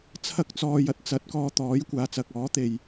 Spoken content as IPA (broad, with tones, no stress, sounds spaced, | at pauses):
t͡sʰ ɐ˧ k̚ t͡s ɔː˨ j ɐ˥ t̚ t͡s ɐ˨˥ t̚ k ɔː˧ t̪ ɔː˨˥ j kʷ aː˨˧ t͡s ɐ˨ k̚ ɔː˨˥ t̪ e˨ j